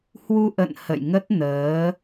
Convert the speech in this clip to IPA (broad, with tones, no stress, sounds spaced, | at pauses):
h w u˧ ʔ ə̰˧˨ n h ə̰˧˨ j ŋ ə˦˥ t̚ n əː˨˦